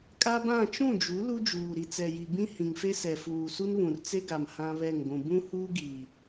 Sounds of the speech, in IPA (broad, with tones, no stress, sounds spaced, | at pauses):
kʼ a˦ b ã˦˨ t͡ʃ ũ˦˨ d͡ʒ u˨˦ l u˦ d͡ʒ uː˨ ɾ i˨ t͡s ɛ˨ j i˨ b ĩ˦ h ĩ˨ ŋ f e˦ s ɛ˨ f uː˨ s u˦ n β ũ˨ r t͡s e˦ ɡ a˨ m h ã˦ β ɛ˦˨ ŋ ɡʷ ũ˨ b ũ˦ h uː˦ ɡ iː˨